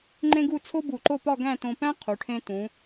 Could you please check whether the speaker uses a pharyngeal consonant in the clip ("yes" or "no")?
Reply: no